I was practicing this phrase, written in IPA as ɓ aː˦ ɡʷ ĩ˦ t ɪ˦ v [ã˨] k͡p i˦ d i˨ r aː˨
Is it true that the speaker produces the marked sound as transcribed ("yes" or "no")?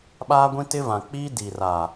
yes